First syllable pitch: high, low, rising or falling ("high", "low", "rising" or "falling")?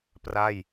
falling